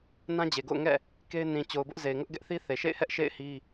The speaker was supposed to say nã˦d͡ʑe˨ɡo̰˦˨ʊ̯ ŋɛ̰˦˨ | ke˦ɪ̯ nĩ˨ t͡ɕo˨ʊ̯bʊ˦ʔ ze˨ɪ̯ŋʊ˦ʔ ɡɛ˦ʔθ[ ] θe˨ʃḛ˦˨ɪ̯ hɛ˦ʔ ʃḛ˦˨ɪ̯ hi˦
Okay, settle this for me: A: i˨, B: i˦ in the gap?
B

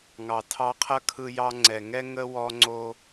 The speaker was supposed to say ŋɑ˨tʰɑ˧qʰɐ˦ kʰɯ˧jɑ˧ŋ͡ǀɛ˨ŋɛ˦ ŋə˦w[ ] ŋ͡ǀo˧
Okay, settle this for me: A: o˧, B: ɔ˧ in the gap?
B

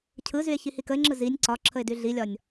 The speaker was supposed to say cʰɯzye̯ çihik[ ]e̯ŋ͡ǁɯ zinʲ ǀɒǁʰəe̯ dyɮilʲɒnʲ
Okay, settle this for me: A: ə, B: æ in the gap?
A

